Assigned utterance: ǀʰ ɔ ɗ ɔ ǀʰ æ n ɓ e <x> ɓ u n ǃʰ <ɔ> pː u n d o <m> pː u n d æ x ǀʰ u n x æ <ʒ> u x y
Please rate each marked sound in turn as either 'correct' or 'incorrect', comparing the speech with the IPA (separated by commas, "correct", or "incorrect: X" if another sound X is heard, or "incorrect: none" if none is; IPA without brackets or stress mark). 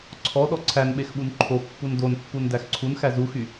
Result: correct, incorrect: o, incorrect: n, incorrect: z